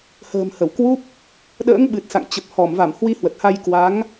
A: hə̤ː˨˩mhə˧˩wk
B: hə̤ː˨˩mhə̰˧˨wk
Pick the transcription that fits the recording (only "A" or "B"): A